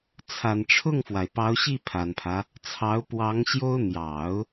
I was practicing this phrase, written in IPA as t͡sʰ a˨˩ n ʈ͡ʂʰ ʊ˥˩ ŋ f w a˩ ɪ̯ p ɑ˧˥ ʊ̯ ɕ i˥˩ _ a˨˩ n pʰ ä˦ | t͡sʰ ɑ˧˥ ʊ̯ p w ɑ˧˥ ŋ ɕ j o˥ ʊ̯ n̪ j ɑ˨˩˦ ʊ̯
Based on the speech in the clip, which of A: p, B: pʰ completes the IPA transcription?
B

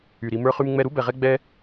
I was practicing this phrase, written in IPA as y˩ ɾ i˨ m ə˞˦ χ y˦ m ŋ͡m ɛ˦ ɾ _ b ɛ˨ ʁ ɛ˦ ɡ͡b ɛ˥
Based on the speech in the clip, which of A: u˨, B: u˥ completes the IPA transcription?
B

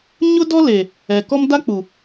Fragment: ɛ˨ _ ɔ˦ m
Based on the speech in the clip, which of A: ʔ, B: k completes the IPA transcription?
B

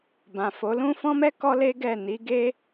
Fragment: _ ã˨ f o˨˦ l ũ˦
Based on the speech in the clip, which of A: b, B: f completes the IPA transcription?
A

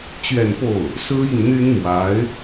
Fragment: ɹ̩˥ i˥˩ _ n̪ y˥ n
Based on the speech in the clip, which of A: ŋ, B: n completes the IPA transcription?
A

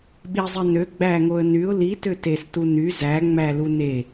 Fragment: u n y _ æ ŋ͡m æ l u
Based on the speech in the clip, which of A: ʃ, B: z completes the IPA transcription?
B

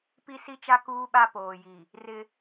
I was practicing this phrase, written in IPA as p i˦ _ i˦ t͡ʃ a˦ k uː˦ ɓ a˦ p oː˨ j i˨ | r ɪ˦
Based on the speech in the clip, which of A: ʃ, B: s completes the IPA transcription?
B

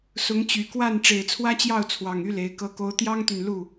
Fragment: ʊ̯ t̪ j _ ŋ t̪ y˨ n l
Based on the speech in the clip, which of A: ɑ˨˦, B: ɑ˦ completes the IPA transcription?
B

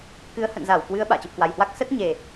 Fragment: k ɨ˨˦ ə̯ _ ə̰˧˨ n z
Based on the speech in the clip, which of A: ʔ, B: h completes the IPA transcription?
B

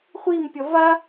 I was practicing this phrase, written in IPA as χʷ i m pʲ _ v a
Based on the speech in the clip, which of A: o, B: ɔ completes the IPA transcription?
B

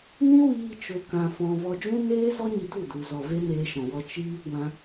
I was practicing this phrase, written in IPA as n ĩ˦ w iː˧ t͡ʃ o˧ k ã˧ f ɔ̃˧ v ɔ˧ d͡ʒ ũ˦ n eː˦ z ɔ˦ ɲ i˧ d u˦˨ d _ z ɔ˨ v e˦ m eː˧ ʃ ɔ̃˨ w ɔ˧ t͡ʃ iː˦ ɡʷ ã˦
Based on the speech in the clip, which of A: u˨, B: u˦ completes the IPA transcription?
A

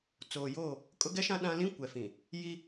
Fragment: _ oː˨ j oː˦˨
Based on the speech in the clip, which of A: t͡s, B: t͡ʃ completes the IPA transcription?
A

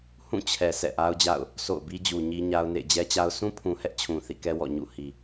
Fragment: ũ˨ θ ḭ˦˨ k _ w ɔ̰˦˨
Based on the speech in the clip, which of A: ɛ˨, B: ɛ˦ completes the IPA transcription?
B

